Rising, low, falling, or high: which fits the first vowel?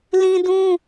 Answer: high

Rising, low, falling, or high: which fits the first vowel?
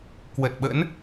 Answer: low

